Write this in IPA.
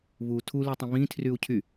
βu tʰulytˤĩ βĩtʰryu̯ cʰy

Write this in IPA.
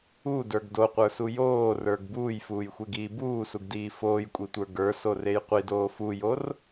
udə˞ɡ doqʷə˞su joːrə˞ɡ buːjfuːjxʷeɡiː buːsuɡdiː foːjkʷʼitʷə˞ ɡə˞sorej qʷidoː fujor

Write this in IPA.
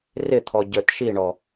rɪt̪ʰɔ ɟə˞tʃiɳɔ

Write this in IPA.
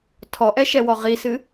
tʰɔʔɛʃɛwɔ ʁisɨ

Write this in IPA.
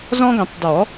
zɔ̃˦ɡɛ̃˨˩˦tˤ dɔ˨˩˦

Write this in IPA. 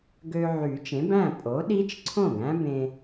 ɡø˧ ʕy˨˩˦t͡ʃẽ˩˥bæ̃˥˩ pʼo˩˥ɗi˦˥t͡ʃǀʰõ˥˩ɡ æ̃˦˥bẽ˧

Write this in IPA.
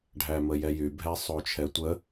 ɖʱæməjɛjy bʱɛsˤot͡ʃʰɛtʷə

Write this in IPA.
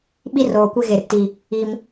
ɓi˦roː˨ kʷe˦ɣe˨r ti˨ | i˦m

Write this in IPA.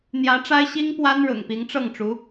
n̪jä˧˥ʈ͡ʂa˥ɪ̯ ɕi˥ŋpwa˥n ɻʊ̰˨˩ŋpi˧˥ŋʈ͡ʂɤ˥˩ŋʈ͡ʂu˧˥

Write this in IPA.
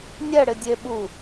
nʲɛ ɽɪdʲe ɓu

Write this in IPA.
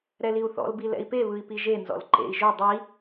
ɾɛliu̯θɔ̰l bilɛ̰i̯pe βɯi̯piʒe nzɔ̰lǃḛi̯ ʒo dˤi

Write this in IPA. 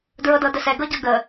dɹɤdɤdəsɛ ɡɤɟɤɡə

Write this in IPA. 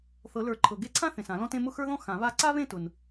θɤ˨˩˦lə˞˨˩˦ǃʰɤ˨ɡe˥˧ ǀʰã˥ θẽ˨sã˨˩˦lɔ̃˥t ẽ˥˧mʊ˥˧xə˞˥ðɔ̃˥ xã˨˩˦βa˥˧ ǀa˥βẽ˥˧tʊ˨n

